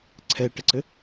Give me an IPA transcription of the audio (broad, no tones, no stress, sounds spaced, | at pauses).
ǀʰ ɛ ʈ ə ǀ ɘ